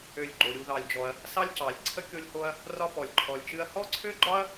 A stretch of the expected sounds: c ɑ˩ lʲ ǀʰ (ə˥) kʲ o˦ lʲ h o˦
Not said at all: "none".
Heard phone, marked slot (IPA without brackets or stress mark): ə˥